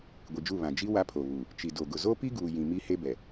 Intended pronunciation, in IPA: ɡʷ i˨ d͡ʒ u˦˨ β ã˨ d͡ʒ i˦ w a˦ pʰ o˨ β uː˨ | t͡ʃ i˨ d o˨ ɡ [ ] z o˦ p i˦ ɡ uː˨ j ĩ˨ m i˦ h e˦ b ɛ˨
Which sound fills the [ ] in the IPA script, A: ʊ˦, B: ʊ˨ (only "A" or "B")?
B